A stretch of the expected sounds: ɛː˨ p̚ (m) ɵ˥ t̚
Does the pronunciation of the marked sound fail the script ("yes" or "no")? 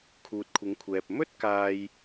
no